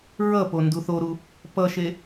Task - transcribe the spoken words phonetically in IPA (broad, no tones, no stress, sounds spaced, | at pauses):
ɹ ʌ p o n d u θ o ɾ u | p ʌ ʃ e